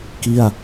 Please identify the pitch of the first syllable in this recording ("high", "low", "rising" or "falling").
falling